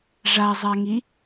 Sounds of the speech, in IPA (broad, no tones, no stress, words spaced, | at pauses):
ʐazˤaŋi